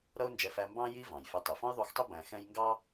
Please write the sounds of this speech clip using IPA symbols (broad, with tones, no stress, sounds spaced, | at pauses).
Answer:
ɾ ʌ˥ ʊ̯ n d͡ʒ ɛ˧ f æ˧ m b ɑ̃˥ j i˥ v ɑ̃˩ j f ɛ˧ tˤ i˩ f ɔ̃˥ j ðˤ u˧ x tˤ ɪ˥ b æ̃˧ x ɛ̃˥ j ŋ ɡ ɑ˥